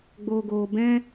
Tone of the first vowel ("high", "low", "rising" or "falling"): low